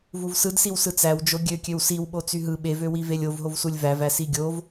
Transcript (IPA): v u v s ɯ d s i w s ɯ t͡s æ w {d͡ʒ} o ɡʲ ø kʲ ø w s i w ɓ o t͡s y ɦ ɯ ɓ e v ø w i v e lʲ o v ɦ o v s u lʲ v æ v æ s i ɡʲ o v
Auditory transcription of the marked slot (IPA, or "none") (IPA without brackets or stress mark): d͡ʒ